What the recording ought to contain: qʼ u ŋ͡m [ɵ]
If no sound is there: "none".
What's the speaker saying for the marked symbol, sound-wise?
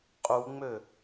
ø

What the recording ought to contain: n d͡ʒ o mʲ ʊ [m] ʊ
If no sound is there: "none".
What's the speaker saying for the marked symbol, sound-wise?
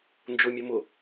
m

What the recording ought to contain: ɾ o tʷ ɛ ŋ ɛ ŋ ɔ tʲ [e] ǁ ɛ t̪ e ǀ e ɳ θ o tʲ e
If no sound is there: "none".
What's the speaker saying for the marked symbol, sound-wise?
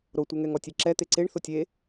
e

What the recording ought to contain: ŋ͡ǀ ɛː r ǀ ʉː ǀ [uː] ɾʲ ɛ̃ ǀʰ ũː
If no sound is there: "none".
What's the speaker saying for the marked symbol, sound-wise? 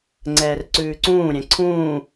ũː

